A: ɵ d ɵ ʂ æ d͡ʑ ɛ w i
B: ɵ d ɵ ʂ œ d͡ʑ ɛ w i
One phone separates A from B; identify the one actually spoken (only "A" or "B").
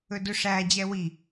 A